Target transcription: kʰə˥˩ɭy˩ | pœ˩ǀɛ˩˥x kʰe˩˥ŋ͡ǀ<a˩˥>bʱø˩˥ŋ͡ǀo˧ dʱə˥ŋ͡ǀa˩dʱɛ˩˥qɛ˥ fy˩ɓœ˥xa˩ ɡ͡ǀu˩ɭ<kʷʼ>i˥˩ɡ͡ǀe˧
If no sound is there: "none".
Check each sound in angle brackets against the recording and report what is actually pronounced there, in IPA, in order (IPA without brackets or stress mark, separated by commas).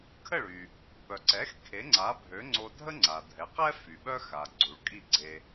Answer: a˩˥, kʼ